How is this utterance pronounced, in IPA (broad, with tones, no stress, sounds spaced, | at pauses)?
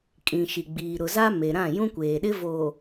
kʼ ĩ˨ ʃ i˨ ɡ͡b iː˨ ɾ ʊ˨ z a˦ m e˨ ɾ ã˦˨ j ũ˦ kʷ eː˨ ɗ ɪ˦ v oː˨